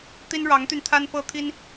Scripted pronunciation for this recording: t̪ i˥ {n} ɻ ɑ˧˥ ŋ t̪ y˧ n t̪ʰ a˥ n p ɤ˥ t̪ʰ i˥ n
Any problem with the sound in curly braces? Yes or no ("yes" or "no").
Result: no